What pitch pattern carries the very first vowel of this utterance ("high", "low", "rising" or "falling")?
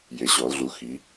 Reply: rising